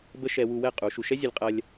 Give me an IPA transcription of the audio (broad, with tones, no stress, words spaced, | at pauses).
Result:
bə˦ʃɛ˧ wu˧wɛ˦˨ qʼu˨˦ʃu˧ ʃɛ˦zʲə˧lʲqʼɐ˧lʲ